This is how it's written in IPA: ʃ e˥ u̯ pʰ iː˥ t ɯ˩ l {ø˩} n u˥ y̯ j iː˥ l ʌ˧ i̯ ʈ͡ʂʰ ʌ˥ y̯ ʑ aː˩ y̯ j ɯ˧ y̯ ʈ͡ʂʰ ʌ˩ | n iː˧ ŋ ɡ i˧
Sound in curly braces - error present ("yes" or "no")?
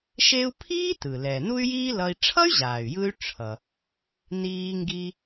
yes